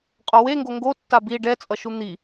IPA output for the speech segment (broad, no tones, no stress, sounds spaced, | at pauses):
qʼ o w e ŋ ɡ o ŋ ɡ o tː a b i ɖ ɛ t͡sʼ ʌ ʃ u n̪ i